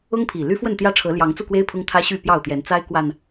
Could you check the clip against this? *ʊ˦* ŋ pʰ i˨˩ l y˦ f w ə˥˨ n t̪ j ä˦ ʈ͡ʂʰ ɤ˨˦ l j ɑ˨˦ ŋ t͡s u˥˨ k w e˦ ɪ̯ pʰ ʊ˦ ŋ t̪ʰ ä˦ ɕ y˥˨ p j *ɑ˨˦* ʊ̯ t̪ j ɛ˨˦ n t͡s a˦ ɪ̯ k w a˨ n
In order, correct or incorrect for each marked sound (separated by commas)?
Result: correct, incorrect